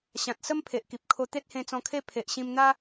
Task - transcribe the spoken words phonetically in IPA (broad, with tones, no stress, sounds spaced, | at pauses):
ɕ ã˨ t̚ s ə˦ m pʰ e˨ ʔ k i˨ p̚ kʰ o˧ t̪ e˦ t̚ h ẽ˧ t͡s ɔ̃˧ kʰ e˦ pʰ e˨ ʔ ɕ ĩ˧ m n̪ a˦